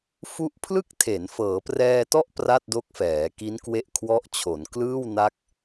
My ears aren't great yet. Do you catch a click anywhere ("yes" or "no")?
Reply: no